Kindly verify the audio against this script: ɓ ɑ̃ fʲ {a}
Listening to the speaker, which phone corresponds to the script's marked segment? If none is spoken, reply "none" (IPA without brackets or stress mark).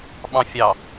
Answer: ɑ